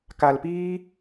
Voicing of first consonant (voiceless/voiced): voiceless